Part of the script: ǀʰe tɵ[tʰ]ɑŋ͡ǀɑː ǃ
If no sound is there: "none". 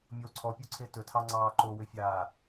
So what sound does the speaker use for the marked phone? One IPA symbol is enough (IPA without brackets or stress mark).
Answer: tʰ